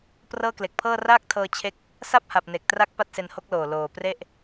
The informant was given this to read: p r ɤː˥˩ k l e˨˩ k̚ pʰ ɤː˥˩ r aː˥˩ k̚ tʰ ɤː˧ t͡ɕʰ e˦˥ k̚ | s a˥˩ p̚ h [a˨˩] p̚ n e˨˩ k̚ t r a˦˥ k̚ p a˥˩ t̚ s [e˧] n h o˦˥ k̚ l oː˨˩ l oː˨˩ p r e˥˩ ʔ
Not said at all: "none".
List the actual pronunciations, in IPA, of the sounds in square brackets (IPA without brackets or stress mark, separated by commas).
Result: a˨˩, e˧